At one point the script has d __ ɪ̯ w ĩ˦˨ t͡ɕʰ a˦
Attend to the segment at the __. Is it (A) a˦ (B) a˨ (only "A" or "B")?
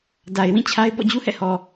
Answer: B